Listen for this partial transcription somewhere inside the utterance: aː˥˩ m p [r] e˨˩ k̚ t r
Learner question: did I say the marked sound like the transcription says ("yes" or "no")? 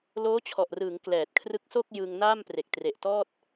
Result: yes